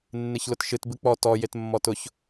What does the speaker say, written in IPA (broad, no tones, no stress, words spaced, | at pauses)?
nːeçlʊtʃɨt bɨk͡pɔ tɔ jetmːɔtʊç